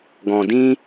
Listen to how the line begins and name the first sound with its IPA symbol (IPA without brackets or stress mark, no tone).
ɡ